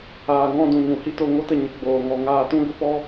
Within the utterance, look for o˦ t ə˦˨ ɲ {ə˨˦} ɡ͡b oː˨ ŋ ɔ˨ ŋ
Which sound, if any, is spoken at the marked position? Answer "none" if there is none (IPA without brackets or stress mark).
ə˨˦